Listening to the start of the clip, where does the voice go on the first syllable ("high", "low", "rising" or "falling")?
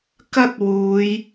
high